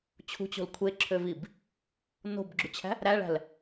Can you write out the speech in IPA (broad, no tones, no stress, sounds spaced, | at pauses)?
t͡ɕʰ ṳ t͡ɕ o̤ l kʷʰ e ǁʰ ø v i b | n o̤ b ɡ͡ǁ y t͡ɕʰ æ̤ | ɾ æ ɭ æ̤ l